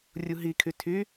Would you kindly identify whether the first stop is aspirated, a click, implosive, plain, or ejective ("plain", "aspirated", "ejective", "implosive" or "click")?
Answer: aspirated